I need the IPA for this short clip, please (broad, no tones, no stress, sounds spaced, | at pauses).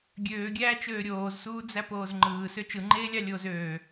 ɡʲ øː ɡʲ æː t͡ʃ øː ɾʲ oː z s uː d͡z æ p oː z ŋ͡ǃ ɯː s ø t͡ʃ ɯ ŋ͡ǃ eː lʲ ɑ lʲ oː z øː